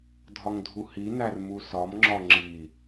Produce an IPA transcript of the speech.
dʱ ɒ ŋ dʱ u h i n æ r m u s ɒ m ŋ͡ǁ ɒ ŋ͡ǁ i

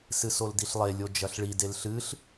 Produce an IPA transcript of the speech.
s ɨ s o l d i ɬ lˠ e lʲ o d͡ʒ ɐ ɬ ɭ i d e l ɬ ɨ ɬ

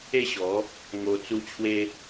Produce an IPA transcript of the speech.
e˥˧ ɕ ɔ˨˦ | ŋ o˧ t͡s u˦ t͡ɕʰ w e˦

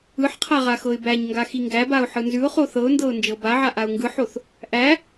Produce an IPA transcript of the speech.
ɯ ħ qʰ a ʁ a x ɤ ɪ̯ b æ ɲ ŋ ɡ a x i ŋ ɡ æ b a ʊ̯ ħ ɯ n z ʉ ʊ̯ χ o θ ɤ ʊ̯ n d ɤ ʊ̯ n d͡ʒ ɤ b a ʕ a ʔ a ʊ̯ ŋ ɡ ɯ ħ o θ | ʔ æ

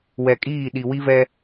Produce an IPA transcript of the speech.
w ɛ˨ kʼ iː˦˨ ɗ i˨ w i˦ v ɛ˦

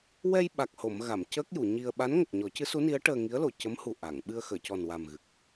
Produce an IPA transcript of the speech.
w ɛ˧ j ɓ a˨˩ k̚ h o˨˩˨ m ɣ a˨˩˨ m c əː˦˥ k̚ j u˨˩˨ ɲ i˧ ə̯ ɓ a˧˥ n ŋ ə˨˩ k̚ ɲ ɔ˨˩˦ c ɨ˧˥ s u˧˥ n i˧˥ ə̯ ʈ əː˧ ŋ i˧˥ ə̯ l o˨˩˨ c ə˧˥ m h u˨˩ ʔ a˨˩˨ ŋ ɓ ɨ˧ ə̯ x əː˨˩˨ c ɔ˨˩ n w a˨˩ m ɣ ɨ˨˩ k̚

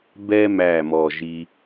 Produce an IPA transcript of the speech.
b ɛ˧ m æ˨˩ m ɔ˨˩ ʒ i˧

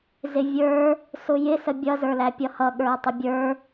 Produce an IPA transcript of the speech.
z ɪ vʲ ə˞ | s ʊ j ɪ s ə bʲ ʌ z ə˞ l æ pʲ ʌ h ʌ ɠ ə˞ e̯ tˤ ɪ bʲ ə˞

